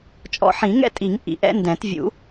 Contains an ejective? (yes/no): yes